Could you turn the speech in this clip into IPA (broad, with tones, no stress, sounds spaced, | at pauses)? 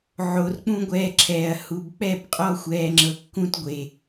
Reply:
ʕ o˨ r k͡p ũ˦ ɡʷ ɛː˧ ǁʰ ɛː˨ ɐ̯ h u˧ b k͡p ɛ˦˨ b qʼ ɔ˦ xʷ ɛː˧ ŋ͡ǁ ɤ˧ kː ũ˦ t ɡʷ e˨